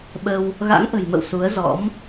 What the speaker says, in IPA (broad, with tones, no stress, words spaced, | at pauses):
ɓə˧w | ɣa̰˧˥ŋʔə̤˨˩jmə̰˧˨w su˨˦ə̯zɔ̰˧˥m